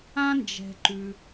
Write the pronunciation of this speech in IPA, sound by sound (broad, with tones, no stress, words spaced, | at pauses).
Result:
ã˥nd͡ʒɛ̤˩ ǃʉ˩